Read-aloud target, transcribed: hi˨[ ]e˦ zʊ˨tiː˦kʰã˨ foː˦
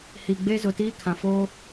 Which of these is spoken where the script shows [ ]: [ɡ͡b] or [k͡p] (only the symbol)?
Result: ɡ͡b